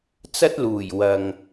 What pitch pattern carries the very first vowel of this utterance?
high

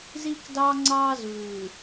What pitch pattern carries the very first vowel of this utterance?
high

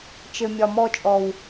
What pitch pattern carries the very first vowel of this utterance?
low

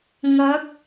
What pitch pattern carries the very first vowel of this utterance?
rising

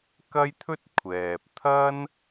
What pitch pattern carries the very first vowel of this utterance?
high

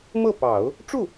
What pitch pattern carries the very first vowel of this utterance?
falling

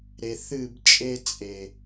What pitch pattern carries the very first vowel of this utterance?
low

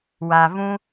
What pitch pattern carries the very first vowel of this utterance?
low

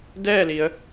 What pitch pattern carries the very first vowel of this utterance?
falling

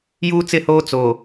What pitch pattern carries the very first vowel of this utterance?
high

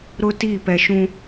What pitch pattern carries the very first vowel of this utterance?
high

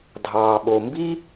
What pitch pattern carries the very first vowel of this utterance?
low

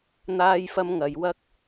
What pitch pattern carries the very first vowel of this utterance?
high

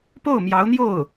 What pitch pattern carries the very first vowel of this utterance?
falling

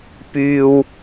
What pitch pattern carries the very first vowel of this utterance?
high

